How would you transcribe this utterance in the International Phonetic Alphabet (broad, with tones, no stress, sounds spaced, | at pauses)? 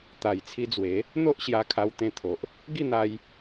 t̪ a˨˩ j t͡sʰ i˧ d͡z w e˨˦ | n̪ o˦ ʔ ɕ j a˧ kʰ a˧ w t̪ ẽ˧ t̪ʰ o˨ ʔ | ɡ i˥˧ n̪ a˧ j